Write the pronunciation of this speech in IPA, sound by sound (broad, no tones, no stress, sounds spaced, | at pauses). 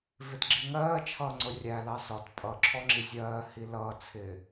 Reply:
v ɪ t ɡ͡ǁ i ŋ ɜː t͡ʃʰ ʌː ŋ͡ǀ ʊ rʲ æ l ɑ s ɒ t pʼ ʌ ǁʰ ɔ ŋ͡ǁ i zʲ ɜː h i l ʌː t͡sʰ ɪ